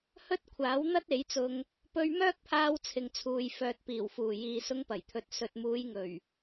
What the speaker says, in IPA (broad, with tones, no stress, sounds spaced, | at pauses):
h ɵ˥ t̚ kʷʰ aː˨˥ w n̪ ɐ˥ t̚ e˨˥ j t͡s ʊ˧ ŋ | p ɵ˧ ɥ m œː˥ k̚ pʰ aː˧ w t͡sʰ ɪ˨ ŋ t͡sʰ uː˨ j f œː˨ t̚ p iː˨˩ w f uː˨˩ j iː˨ s ʊ˧ ŋ p ɐ˨˩ j t̪ʰ ɵ˨ t̚ s ɵ˨ t̚ m uː˨˧ j ŋ ɵ˨˩ ɥ